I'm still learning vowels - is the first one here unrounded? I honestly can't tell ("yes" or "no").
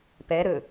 yes